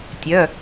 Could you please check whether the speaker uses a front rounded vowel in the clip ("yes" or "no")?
yes